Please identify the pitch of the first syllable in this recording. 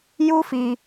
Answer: high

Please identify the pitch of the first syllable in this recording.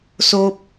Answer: high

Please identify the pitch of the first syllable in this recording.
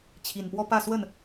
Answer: low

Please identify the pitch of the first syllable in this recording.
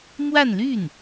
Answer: falling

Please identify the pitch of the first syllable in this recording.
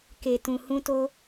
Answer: low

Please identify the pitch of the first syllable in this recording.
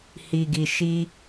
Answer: low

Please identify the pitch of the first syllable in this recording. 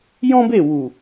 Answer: high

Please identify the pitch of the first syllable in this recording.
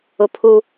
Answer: high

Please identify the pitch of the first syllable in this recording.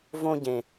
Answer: high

